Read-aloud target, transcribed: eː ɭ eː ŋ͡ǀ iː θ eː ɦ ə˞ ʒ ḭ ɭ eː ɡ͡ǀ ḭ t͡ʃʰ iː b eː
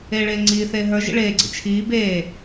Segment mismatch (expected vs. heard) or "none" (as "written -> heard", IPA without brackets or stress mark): none